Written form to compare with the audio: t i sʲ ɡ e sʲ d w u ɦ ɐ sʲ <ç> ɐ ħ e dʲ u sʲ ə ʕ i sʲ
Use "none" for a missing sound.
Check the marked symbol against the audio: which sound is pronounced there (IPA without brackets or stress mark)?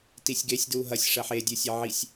ʂ